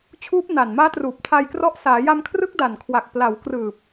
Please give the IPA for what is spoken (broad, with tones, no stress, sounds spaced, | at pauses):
t͡ɕʰ uː˦˥ p̚ n a˨˩ n m aː˦˥ t r uː˨˩ p̚ tʰ a˧ j k r ɔ˦˥ ʔ s aː˩˦ j a˧ m kʰ r ɯ˦˥ k̚ d a˨˩ n kʰ w a˨˩ k̚ p l a˩˦ w k r ɯː˨˩ p̚